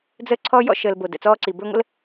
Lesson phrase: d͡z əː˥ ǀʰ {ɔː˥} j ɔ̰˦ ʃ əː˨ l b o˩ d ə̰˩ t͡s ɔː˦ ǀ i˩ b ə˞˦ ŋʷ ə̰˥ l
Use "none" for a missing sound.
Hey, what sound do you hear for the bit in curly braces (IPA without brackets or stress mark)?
ɔː˥